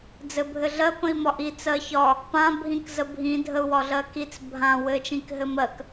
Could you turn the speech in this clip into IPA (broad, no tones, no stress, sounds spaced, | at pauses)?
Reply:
d͡z ɘ bʱ ɘ ɮ ɜ p ə̃ i̯ m ɒ ʔ i t͡s ɜ ç ɒ | p ã bʱ ĩ k z ə bʱ ĩ dʱ ə u̯ w ɒ ɮ ɜ k i t͡s bʱ ã w ɘ t͡ʃ ĩ k ɦ ɘ m ɜ k